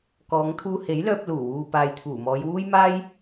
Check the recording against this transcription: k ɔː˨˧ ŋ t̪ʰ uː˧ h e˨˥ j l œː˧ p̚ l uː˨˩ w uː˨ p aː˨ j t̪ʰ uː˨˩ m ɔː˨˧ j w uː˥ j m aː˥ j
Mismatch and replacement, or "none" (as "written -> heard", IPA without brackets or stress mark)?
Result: none